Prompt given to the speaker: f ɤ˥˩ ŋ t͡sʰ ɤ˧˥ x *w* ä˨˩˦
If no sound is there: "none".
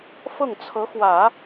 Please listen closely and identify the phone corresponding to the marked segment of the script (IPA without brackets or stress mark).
w